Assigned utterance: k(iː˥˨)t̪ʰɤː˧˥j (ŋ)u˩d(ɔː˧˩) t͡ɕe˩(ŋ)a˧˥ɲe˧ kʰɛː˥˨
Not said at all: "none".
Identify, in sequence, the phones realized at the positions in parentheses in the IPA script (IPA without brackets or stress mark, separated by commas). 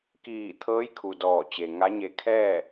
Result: iː˧˩, kʰ, ɔː˧˩, ŋ